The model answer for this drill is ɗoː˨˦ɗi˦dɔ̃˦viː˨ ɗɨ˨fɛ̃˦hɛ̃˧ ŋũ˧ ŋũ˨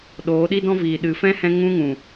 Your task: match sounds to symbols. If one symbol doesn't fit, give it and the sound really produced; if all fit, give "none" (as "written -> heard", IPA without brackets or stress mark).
none